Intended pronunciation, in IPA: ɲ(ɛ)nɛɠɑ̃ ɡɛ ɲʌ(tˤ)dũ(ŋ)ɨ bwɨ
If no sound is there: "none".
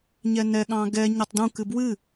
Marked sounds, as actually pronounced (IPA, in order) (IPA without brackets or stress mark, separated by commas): ɛ, tˤ, k